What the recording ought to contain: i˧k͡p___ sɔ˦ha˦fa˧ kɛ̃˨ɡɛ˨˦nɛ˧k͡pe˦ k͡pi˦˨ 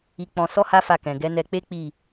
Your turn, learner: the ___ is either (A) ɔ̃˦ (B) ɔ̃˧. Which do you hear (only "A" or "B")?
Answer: B